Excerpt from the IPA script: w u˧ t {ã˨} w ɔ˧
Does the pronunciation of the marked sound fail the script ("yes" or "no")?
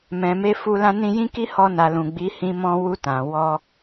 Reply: no